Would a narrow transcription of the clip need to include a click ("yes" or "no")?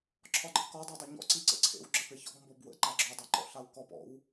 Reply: yes